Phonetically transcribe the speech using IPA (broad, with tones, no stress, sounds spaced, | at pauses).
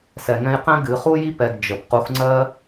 s ɛ˩ ŋ ɛ̃˧ j q ɛ̃˥ ɡ ɨ˩˧˩ χ u˥ j i˥ p ɛ˩˧˩ ɡ d͡ʒ ə˩ p q u˨˥ x ŋ͡ǀ ɜ˥